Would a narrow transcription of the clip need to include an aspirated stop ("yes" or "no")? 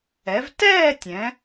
no